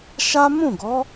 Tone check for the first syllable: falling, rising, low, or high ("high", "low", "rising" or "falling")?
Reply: high